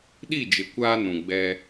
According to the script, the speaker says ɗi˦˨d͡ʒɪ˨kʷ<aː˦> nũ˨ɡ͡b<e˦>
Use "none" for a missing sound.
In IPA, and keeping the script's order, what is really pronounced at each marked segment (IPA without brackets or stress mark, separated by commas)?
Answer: aː˦, ɛ˦